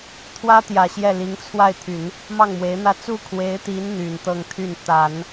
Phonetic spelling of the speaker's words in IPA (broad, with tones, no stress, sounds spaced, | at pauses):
t̪ʰ w ä˥ t̪ j ä˨˩ ɕ j ɛ˥˩ l i˧˥ ŋ t͡sʰ w a˥˩ ɪ̯ t̪ʰ y˨˩˦ n | m ɑ˥˩ ŋ m w e˧˥ ɪ̯ n̪ ä˥˧ t͡s u˥˩ kʰ w e˧˥ ɪ̯ t̪ i˧˥ n n̪ y˨˩ n t̪ ɤ˥˧ ŋ t̪ʰ y˥˩ n t̪ a˨˩˦ n